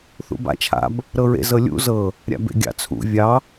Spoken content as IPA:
θṵba̰ t͡ʃʰa̰b | ɾɤɹḛ zɤlʲṵ zɤ | ɾʲa̰bḛɡʲɑ̰t͡sʰṵ vʲɑ

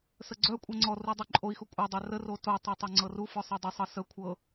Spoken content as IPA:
səɡ͡ǀœkʷʼɤ ŋ͡ǀɔ rudˤœǃʼoi̯xu kʷʼœdˤœ rəro totˤœ tˤœŋ͡ǀɤrufɔ sˤɤdˤœsˤɤ sə kʷʰɤ

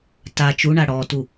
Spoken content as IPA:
ta t͡ʃuɳa ɽɔtu

